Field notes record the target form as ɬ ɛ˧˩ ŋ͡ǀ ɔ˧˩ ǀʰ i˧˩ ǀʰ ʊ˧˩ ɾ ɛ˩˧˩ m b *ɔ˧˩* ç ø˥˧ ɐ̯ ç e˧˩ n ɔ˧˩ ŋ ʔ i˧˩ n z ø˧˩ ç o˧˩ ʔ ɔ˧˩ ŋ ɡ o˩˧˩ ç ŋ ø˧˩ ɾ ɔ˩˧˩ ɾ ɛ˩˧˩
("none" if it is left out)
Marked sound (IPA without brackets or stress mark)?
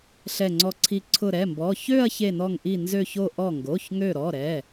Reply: ɔ˩˧˩